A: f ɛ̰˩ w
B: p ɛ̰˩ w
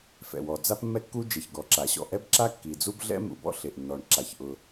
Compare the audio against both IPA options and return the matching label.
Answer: A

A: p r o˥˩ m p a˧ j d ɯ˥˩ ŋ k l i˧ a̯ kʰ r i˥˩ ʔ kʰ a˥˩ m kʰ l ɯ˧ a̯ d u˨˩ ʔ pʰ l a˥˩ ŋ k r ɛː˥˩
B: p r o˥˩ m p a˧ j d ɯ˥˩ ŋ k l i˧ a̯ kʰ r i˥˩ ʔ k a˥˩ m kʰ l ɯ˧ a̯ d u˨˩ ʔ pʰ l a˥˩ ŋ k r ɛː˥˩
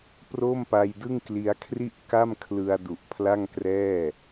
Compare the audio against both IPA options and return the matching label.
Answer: B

